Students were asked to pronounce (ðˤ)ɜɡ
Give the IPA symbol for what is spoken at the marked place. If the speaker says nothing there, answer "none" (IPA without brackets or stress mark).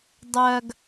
dˤ